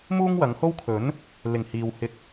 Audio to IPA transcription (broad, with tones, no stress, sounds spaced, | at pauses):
m uː˥ ŋ w ɐ˨˧ ŋ h o˥ w kʰ ɵ˨˥ n | l ɪ˨˩ ŋ h iː˨ w h ɪ˧ k̚